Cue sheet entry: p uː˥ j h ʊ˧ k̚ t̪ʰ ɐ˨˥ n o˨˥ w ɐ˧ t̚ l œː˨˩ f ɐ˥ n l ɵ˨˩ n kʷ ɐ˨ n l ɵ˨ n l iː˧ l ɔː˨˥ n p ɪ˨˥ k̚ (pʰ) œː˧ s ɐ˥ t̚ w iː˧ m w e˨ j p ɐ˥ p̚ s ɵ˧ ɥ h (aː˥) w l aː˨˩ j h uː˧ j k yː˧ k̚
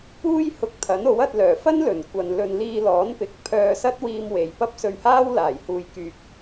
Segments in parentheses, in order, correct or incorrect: correct, correct

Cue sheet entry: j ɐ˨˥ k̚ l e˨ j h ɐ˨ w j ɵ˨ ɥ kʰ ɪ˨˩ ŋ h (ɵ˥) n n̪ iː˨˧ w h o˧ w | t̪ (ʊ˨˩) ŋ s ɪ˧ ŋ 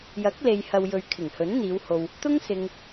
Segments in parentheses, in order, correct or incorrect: incorrect: ɵ˨˥, incorrect: ʊ˥

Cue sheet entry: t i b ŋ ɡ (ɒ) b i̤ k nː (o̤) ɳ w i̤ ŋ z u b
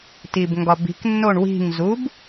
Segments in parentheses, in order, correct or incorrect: correct, incorrect: o

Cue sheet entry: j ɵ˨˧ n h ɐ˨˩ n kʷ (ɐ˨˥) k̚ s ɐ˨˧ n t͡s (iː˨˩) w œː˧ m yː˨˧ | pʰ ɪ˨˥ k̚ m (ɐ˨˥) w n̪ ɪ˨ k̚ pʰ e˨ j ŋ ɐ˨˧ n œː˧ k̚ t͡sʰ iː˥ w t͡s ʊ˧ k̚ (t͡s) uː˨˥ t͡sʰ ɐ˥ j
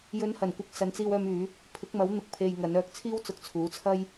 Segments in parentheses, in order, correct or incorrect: correct, incorrect: iː˧, correct, incorrect: t͡sʰ

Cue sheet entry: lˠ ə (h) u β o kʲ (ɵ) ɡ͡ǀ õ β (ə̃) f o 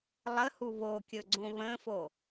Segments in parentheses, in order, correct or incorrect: correct, correct, correct

